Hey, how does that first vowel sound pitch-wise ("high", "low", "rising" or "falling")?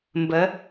rising